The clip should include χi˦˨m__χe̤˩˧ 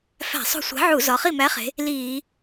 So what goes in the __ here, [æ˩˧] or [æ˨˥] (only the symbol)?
æ˨˥